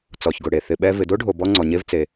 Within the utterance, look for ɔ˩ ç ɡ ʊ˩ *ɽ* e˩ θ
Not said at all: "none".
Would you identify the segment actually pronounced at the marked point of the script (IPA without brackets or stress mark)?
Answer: ɽ